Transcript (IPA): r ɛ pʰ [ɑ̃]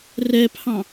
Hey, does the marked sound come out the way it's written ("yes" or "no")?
yes